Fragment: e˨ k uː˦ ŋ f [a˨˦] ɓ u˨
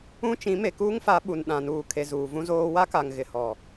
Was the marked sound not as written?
no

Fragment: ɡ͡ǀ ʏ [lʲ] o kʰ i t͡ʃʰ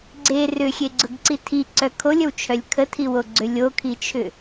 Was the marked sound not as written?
no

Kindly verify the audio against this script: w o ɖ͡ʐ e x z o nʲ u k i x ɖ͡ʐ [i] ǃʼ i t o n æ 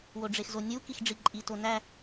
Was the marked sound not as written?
no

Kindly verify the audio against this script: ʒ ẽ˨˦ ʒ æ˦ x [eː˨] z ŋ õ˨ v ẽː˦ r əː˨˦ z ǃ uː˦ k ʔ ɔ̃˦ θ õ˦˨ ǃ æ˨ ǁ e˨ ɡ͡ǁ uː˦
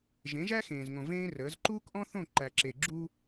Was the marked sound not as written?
yes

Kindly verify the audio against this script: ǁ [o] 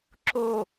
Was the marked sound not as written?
no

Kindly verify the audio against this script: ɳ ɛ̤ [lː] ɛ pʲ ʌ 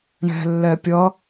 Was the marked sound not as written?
no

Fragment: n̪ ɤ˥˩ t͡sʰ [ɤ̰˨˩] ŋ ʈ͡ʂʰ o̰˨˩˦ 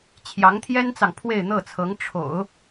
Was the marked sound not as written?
yes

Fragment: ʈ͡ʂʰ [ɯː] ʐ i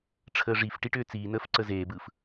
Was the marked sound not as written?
yes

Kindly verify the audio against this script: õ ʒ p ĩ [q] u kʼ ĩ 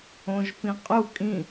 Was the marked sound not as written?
yes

